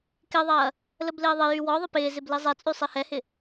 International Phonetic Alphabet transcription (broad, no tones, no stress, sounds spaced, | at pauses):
k ɪ ðˤ ɐː | l ə b l ɪː ðˤ ɪ j y w ɔ ðˤ ə p ɪː z ɪ b l i zˤ ɛ t͡sʼ y sˤ i h ɛ h ɪ